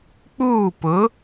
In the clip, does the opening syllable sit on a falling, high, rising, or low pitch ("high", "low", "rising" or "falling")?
falling